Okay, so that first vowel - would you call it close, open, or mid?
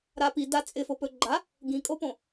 open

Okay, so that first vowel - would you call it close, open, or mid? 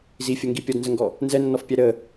close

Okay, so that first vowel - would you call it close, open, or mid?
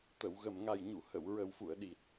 mid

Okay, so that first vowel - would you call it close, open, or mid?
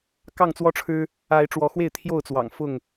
open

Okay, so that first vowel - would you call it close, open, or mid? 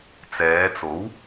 mid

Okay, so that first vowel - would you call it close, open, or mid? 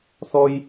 mid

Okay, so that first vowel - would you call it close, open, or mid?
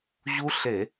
close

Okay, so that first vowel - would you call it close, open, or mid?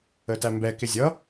mid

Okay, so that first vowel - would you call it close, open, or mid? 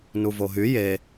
close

